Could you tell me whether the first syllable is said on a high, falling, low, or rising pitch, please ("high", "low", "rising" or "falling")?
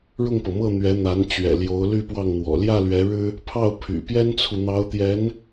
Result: falling